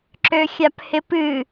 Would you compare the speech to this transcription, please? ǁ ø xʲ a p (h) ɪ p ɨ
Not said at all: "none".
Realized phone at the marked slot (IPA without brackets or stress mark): h